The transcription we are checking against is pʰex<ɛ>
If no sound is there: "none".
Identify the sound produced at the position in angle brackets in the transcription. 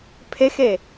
e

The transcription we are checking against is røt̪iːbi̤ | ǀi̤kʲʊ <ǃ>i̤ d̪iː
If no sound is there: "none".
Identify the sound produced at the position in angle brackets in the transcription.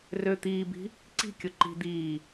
ǃ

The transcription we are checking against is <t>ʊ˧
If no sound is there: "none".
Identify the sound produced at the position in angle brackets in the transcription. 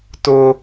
t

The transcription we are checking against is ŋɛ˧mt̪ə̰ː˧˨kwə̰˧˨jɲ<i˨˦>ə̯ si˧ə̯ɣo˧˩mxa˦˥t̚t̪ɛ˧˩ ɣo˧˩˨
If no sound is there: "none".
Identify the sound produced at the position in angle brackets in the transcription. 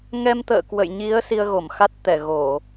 i˨˦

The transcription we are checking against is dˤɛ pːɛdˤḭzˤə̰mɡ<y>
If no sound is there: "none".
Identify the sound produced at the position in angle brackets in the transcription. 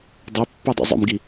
i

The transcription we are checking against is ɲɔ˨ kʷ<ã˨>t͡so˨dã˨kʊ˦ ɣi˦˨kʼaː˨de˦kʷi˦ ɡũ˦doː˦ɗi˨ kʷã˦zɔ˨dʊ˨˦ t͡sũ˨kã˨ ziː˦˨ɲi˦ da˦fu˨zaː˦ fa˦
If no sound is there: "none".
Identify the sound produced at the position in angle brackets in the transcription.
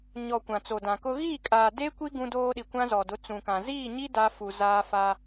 ã˨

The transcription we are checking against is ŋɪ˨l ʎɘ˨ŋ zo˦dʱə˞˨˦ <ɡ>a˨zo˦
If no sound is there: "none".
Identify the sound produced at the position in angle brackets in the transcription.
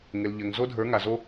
ŋ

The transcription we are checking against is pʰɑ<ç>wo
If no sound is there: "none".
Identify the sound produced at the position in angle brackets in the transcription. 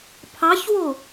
ç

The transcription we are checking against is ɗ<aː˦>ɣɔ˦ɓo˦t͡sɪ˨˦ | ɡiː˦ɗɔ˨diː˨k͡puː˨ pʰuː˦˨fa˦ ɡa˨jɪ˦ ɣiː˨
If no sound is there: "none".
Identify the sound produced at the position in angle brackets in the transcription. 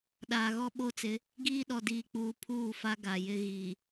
aː˨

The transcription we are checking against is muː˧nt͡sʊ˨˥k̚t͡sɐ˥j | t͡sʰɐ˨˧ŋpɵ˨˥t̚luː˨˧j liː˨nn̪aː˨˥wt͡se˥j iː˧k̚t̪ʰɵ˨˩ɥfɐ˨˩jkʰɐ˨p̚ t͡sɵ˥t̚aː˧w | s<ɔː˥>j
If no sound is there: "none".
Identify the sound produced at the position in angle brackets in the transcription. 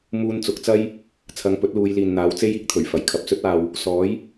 ɔː˨˥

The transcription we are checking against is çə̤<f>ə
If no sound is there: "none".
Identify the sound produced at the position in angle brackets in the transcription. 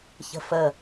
f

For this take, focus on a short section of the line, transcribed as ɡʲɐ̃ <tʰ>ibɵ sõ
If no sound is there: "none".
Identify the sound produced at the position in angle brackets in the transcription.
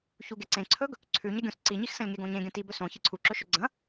t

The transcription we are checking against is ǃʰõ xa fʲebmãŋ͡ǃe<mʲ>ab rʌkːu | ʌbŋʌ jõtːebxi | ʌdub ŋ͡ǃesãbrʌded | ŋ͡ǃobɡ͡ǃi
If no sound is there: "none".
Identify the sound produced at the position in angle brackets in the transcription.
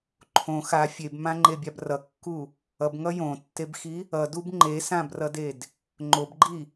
bʲ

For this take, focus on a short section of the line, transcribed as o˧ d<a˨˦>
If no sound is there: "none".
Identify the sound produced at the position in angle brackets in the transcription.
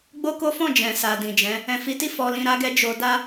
a˦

